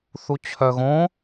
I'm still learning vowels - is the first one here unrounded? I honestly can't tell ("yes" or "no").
no